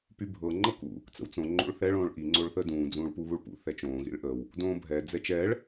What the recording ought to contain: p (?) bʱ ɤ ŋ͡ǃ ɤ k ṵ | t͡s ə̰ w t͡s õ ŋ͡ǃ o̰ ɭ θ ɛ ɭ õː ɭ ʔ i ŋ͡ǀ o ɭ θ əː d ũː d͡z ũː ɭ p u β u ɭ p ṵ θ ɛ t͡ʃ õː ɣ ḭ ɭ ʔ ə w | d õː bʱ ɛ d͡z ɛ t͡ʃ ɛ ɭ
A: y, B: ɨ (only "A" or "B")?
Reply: A